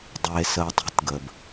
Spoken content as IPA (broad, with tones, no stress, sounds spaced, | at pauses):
dˤ e˧ s əː˧ tˤ i̤˥ t ɡ ə˩ b